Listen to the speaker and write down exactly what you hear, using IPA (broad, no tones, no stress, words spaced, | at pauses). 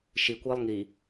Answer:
ʃikʷɪːlˠ ŋi